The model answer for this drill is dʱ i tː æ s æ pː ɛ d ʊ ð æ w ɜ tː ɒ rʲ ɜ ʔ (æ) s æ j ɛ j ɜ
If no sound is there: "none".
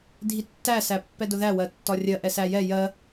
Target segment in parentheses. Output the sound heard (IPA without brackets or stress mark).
ɛ